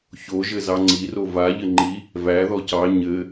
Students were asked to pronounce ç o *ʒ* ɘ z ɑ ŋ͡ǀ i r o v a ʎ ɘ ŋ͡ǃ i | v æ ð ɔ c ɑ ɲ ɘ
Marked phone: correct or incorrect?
correct